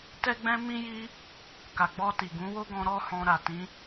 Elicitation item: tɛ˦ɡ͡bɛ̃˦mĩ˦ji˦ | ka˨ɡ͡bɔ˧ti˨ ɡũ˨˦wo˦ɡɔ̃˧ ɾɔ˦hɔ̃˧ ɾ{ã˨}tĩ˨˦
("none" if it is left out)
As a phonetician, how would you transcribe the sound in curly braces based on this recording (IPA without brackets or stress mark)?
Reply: a˨